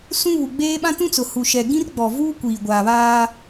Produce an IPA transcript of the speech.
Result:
sũ˦ βu˨ɡ͡beː˦ɓã˦ tũ˦t͡sʊ˨hu˨ ʃɛ˨ɡĩ˦rɡ͡bɔ˨vuː˦ kʷiː˨ɡʷaː˨ βaː˦

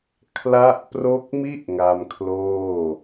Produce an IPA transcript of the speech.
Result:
kʰla˦˥ʔpro˦˥k̚mi˥˩ʔ ŋa˧mkʰloː˥˩

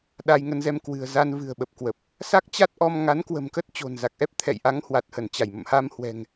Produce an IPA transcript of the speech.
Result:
ɗa˧jŋə˧nzɛ˧m kwɨ̤˨˩ə̯za˧n vɨ̤˨˩ə̯ɓə˨˩p̚kwə˨˩p̚ | sa˦˥k̚t͡ɕa˦˥t̚ʔɔ˧m ŋa˨˦n kwə̤˨˩mkə˦˥t̚ t͡ɕo̤˨˩nza˨˩k̚ʔɛ˦˥p̚ t̪ʰɛ̰˧˨jʔa˨˦ŋhwa˨˩t̚hə˧˩n t͡ɕa˧˩jmə̰˧˨mha˧m hwɛ̤˨˩ŋ

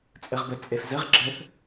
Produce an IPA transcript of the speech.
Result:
t͡sʼɐʁbɐt͡sʼɛf zɐʁ ɡ͡ǁɐθ

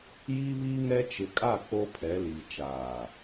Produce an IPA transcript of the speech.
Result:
ji˦ βi˦ŋɛ˦ t͡ʃɪ˨kʼa˦˨ k͡po˦pʰɛ˨˦li˨ t͡ʃaː˨

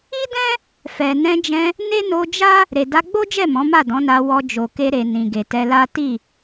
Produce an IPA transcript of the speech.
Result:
i˦dɛ̃˦ | fɛ˨ nɛ̃˧d͡ʒɛ̃˧ | ne˦no˧d͡ʒa˦ | ɾe˨da˧ɡ͡bo˦d͡ʒɛ˦˨ mɔ̃˨˦ma˦˨dɔ̃˨˦na˧ wɔ˧d͡ʒo˨ke˧ ɾe˨ nĩ˨ɡe˨tɛ˧la˦ ti˦˨

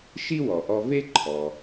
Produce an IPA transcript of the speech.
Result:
ʃi˥wɔ˩ʔɔ˧ ve˥ǃʰɔ˩

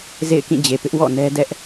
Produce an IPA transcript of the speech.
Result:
zḛ˦˨ɪ̯kĩ˦˨d͡ʑe˨pɪ˦ʔ wɔ̰˦˨nɛ˦ dɛ˦ʔ

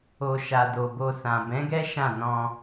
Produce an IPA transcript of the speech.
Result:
o˧ ʃa˨ do˨bo˧sã˨ bɛ̃˨˦ɡɛ˦ ʃã˦˨nɔ̃˧

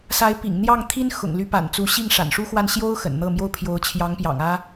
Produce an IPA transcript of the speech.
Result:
sa˧˥ɪ̯pḭ˨˩ŋn̪jɑ˥˩ŋ t̪ʰi˥n xʊ̰˨˩ŋly˧˥pa̰˨˩nt͡su˧˥ ɕi˥˩ŋʂa̰˨˩nʂu˥xwa˥˩n ɕjo˥ʊ̯ xə̰˨˩nn̪ɤ˥˩mjo˥ʊ̯ pʰjo˧˥ʊ̯t͡ɕʰjɑ˧˥ŋpjɑ̰˨˩ŋ ä˥

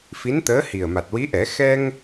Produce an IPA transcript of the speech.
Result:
fi˧˥nt̪əː˧˥ hi˨˩ə̯ma˨˩t̚wi˧˥ʔɛ˨˩˦ xɛ˧ŋ

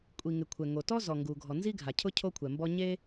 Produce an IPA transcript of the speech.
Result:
kʷʼi˩ŋɪ˩ kʷʰɛ˩ŋo˩tɔ˥ zɔ˩ŋɡu˩ ɡʱɔ˩ nzi˥ɡʱa˩cʰʊ˥ cʰo˥kʷʰɛ˩mbɔ˥ ɲe˥

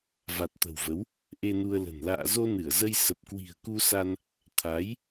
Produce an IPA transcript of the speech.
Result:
va˨˩t̚t̪ə̤˨˩wvə˨˦w | ʔe˧nu˧ə̯lə̤˨˩n la̰ː˧˨zo˧nɨ˧˩ə̯zə˧j sə˨˩p̚kwi̤˨˩ə̯ku˧sa˧n | t̪ʰa˨˦j

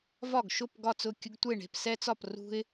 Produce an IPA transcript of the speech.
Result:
vɒ˥˩ɡʃʊ˥˩p ɡɒ˥˩t͡sʊ˥˩ kʲʊ˦ɡtʷe˥˩ɳe̤˥˩p sɛ˦t͡sɒ˥˩p rṳ˦ɪ̯

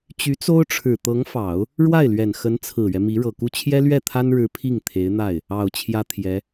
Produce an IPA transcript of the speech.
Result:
t͡ɕy˧˥t͡so˥ʊ̯ʈ͡ʂʰɻ̩˨˩ t̪ɤ˧˥ŋfɑ˨˩˦ʊ̯ | ɻwa˥˩ɪ̯lɥɛ˨˩n xə˧˥nt͡sʰɹ̩˨˩ɥɛ˦ mi˧˥ɻɤ˨˩ku˥˩ t͡ɕʰjɛ˥lɥɛ˥˩t̪ʰa˥nɻɻ̩˧˥ pʰi˥˩ŋ t̪ʰe˧˥ɪ̯n̪a˥˩ɪ̯ | ɑ˨˩ʊ̯ t͡ɕʰjä˥t̪ʰjɛ˧˥

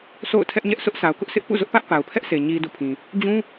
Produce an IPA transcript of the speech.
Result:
sʰo̰˦˨ʊ̯ tʰɛ˦ʔɲɛ˦ʔ sʊ˦ʔsa˨ʊ̯kʊ˦ʔ sɪ˦ʔpṵ˦˨zʊ˦ʔpä˦ʔ pa˨ʊ̯pʰɛ˦ʔsʰe˨ ɲi˨ dṵ˦˨pʰĩ˨ | d͡ʑũ˦

